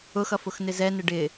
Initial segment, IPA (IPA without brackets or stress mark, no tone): ʊ